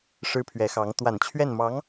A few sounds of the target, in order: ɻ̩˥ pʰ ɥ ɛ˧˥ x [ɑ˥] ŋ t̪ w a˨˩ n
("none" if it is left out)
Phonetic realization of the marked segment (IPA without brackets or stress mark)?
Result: ɑ˧˥